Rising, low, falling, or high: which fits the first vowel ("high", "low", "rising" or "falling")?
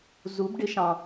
rising